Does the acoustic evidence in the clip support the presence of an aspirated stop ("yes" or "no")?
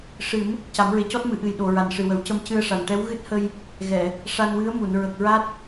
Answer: no